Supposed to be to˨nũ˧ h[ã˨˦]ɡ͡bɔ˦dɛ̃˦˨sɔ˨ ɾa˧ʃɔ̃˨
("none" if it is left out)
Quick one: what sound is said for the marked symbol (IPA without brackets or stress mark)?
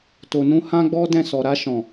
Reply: ã˦